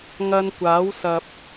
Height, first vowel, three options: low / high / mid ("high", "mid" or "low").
low